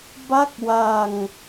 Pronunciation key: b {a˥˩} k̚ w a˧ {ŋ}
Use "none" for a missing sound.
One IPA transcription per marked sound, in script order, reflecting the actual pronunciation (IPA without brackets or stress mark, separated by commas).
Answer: a˥˩, ŋ